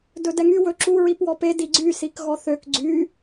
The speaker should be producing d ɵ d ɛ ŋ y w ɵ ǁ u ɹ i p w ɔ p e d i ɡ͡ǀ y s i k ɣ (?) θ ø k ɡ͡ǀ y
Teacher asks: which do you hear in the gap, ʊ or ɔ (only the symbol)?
ɔ